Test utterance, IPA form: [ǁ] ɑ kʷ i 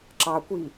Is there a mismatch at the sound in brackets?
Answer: no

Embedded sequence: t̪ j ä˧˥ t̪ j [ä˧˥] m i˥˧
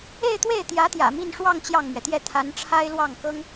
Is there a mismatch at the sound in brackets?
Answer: yes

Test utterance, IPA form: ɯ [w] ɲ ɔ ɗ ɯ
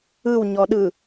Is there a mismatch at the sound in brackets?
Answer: no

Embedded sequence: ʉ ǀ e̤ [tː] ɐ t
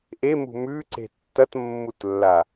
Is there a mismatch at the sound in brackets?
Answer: no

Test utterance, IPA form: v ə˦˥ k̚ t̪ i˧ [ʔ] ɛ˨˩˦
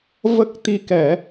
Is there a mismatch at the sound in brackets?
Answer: yes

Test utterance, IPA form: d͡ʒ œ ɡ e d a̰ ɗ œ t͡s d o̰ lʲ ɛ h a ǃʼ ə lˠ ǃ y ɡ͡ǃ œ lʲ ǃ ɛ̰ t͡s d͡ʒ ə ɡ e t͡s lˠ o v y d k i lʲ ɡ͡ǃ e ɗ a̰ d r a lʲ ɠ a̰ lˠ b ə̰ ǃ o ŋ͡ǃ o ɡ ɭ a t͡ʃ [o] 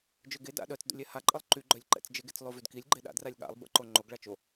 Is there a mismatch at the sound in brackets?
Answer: no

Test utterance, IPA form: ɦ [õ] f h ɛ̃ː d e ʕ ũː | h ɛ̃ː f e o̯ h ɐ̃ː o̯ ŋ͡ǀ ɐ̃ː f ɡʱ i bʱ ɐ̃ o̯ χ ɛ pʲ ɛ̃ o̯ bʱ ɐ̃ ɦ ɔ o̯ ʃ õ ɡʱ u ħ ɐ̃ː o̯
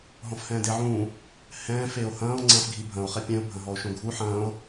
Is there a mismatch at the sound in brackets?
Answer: yes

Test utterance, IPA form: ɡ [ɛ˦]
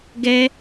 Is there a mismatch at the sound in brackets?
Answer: no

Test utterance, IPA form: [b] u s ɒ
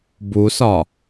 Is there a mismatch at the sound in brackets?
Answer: no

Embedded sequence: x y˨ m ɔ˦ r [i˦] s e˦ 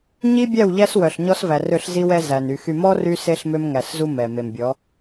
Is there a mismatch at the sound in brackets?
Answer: yes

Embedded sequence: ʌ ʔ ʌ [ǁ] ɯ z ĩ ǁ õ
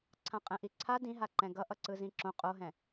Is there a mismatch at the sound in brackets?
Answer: yes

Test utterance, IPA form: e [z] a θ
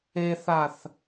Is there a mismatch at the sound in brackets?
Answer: yes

